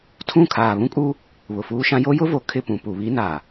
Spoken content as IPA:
tʰũ˦˨ kʰaː˨βũ˦kʼuː˦ | βʊ˨fuː˦ʃã˦ jo˦jʊ˦vo˨ kʰɪ˦˨pũ˨ pu˨ βi˦naː˨

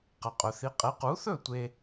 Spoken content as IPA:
qɐ˩qʼɵ˩θi˩˥qʼe˩˥ qu˩˥θɵ˥˩ tʷe˧

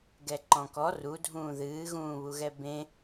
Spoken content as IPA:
ɡɛǃɔ̃kɔ rudʱũː ðɨːɣũːβuɣɛ bẽ

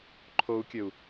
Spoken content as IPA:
ǃʰou̯kʲəu̯

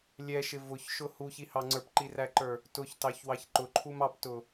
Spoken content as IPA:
lʲɛʃɪ vʊçʃʊ huçihɑ ŋ͡ǀə˞pǃiræǃə˞ | tʊçtɑçwɑç ǃʊǃʰum ɑptʊ

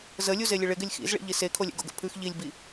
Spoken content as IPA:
zəlʲu zelʲəɭɪɡ ɪlʲxḭzɭḭ ʎisekʰolʲɛ̰ɡ o̰ɡə̰pʰʉx ʎilʲbi

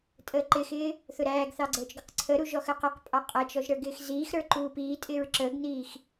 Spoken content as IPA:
tʼəːǃɪxɪː | θʊɾæːɡθɑ ɡ͡ǀəːt͡ʃɡʊqǀʰəɾu ʒɔxəːqʌqpʼɑ qʼæt͡ʃɔʒ ɾə˞ɡɪːxziːxɾə˞ ǃuːpiːtʼɪːɹ ǁəːɡniːx

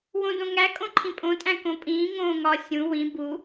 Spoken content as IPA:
wõdõŋæ kʼõǃʰĩpʼõ tʼæ̃kõpʼĩː ŋõːŋɒ sʲũ wĩ bu

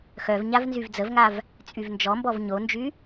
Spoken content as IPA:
xœv ɲavnzyvd͡zəvŋav | t͡sʼyvnd͡ʒɔmbɔv ɲond͡ʒy

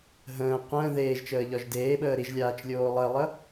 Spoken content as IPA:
ɦə̃ː qʷə̃ː ðeːʒ t͡ʃəːʎɒʒdeːɓəː ɾiʒlʲaːt͡ʃ lʲoːlˠəɪ̯lˠə

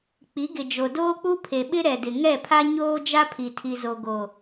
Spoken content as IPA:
k͡pi˨˦ɡɪ˨d͡ʒo˨ doː˦k͡pu˦pʰe˨ ɓɪ˦ ɾɛ˨dɪ˨ ŋɛ˦˨pʰa˦ ɲoː˦ d͡ʒa˦ pʰi˨tʰi˨zo˨ ɡo˨

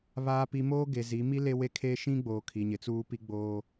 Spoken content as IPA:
βaː˨pi˨ moː˦ ɡe˨zi˨˦ mi˦ le˦we˦kʰeː˦ ʃĩ˦ɡ͡boː˨ kʰi˨ɲɪ˨t͡suː˦pi˦ ɡ͡boː˦

